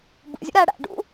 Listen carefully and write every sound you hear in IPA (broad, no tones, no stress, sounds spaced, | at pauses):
b ṵ zʲ ṵ ɾ æ ɽ æ̰ ɖ ṵ